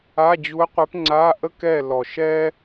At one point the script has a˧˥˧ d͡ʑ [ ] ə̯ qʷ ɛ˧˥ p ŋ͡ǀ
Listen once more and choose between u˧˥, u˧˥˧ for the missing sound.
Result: u˧˥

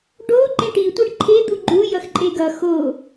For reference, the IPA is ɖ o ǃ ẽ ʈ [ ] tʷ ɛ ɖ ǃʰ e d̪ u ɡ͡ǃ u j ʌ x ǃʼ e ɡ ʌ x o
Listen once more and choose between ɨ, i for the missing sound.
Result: i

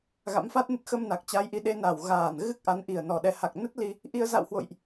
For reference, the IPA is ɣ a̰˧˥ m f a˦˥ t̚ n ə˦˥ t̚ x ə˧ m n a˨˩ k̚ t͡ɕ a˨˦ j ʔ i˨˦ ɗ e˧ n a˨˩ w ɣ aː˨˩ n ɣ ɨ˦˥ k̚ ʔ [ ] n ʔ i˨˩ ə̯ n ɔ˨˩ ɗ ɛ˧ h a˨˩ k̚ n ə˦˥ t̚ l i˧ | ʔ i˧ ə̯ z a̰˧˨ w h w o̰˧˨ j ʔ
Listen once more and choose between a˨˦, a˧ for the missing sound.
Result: a˨˦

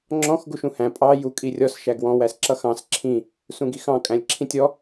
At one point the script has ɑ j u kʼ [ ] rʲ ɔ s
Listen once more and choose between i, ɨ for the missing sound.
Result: i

